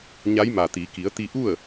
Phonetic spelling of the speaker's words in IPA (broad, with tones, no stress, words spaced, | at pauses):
ɲa˧˥jma˩t̪i˩˧ ki˩˧ə̯t̪i˧ʔu˥˨ə̯